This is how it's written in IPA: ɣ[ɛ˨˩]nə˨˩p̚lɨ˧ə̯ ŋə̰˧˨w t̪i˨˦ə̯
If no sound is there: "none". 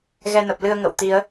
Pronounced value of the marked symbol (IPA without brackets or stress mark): ɛ˧